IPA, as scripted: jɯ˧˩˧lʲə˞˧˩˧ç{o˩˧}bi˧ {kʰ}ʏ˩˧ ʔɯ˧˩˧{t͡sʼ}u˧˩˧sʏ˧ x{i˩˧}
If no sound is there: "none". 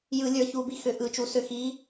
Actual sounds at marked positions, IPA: u˩˧, x, t͡ʃ, i˨˥

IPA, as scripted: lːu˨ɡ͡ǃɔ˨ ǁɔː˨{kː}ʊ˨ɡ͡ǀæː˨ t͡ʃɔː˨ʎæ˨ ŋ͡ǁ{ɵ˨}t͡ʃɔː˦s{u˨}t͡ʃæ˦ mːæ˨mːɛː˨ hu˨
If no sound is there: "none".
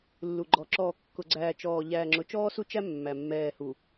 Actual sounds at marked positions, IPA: kː, ʊ˨, u˦

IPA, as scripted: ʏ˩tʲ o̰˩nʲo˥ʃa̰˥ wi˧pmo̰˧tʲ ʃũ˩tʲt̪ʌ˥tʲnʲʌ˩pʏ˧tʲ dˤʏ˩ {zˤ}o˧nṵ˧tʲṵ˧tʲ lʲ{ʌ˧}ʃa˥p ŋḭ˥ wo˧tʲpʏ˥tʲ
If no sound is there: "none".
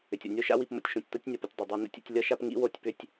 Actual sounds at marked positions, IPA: dˤ, ʌ˥

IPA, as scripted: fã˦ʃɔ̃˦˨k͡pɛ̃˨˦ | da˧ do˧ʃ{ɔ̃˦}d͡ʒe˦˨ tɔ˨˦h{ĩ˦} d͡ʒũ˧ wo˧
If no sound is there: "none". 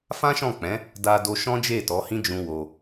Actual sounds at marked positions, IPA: ɔ̃˦, ĩ˦

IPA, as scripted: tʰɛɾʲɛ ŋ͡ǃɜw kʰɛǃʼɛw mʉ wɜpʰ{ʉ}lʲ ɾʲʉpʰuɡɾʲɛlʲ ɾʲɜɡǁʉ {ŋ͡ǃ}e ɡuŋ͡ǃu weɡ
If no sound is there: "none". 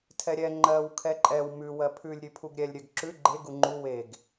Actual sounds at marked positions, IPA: ʉ, ɡ͡ǃ

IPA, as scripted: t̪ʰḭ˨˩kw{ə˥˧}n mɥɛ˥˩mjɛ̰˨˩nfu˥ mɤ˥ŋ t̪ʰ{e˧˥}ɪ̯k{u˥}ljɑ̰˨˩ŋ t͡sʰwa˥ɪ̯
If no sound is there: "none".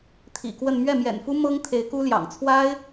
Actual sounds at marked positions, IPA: ə˥˧, e˧˥, u˥

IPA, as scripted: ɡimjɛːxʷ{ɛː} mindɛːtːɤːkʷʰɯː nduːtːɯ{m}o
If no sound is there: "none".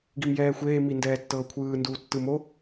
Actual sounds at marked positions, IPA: eː, m

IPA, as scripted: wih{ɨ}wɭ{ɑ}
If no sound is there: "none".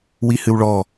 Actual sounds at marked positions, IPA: ɨ, ɔ

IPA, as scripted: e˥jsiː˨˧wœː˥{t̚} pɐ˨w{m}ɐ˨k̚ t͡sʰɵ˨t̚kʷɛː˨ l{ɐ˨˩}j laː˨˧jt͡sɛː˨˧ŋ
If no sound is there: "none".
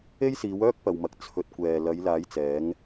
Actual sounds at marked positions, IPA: k̚, m, ɐ˨˧

